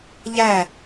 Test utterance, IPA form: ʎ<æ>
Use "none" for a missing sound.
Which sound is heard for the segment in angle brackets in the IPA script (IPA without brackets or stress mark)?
æ